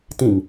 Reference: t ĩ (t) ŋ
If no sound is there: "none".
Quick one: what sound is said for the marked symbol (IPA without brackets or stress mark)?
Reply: none